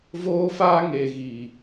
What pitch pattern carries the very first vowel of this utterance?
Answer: high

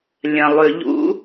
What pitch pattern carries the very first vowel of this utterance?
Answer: low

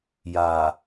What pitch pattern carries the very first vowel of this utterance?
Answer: low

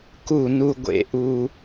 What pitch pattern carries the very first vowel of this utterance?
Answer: falling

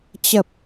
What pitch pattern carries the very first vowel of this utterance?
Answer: low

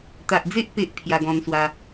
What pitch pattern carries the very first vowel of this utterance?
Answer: low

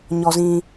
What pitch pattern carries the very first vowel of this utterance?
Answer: high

